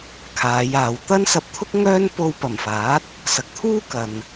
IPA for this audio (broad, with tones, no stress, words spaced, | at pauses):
kʰaː˨˧jaː˨w t̪ɐ˥nsɐ˧p̚t̪ʰʊ˥k̚ ŋœː˥npo˧wpɐ˨˩mfaː˨˥t̚ | sɐ˨k̚t̪ʰuː˥kɐ˨n